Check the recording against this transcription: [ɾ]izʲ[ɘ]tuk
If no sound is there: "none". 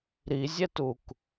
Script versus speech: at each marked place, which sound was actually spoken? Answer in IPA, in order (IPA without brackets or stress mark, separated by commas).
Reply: ɾ, ɛ